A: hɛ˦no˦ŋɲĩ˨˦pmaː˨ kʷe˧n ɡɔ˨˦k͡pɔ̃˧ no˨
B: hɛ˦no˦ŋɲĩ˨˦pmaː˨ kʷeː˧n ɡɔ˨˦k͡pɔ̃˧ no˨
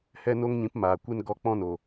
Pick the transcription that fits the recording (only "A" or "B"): A